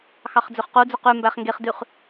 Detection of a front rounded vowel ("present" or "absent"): present